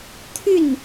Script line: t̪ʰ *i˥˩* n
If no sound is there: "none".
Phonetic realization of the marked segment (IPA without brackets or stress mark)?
y˥˩